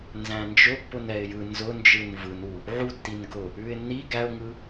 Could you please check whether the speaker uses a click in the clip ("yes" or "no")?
no